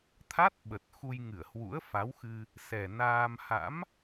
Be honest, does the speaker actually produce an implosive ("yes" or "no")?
yes